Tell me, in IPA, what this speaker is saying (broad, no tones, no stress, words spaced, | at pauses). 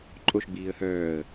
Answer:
ǃʼoʃɡ͡biːə̯ hœːə̯